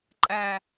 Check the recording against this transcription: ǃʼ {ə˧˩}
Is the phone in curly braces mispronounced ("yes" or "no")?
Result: yes